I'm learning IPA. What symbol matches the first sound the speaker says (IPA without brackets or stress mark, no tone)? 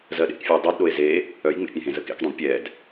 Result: z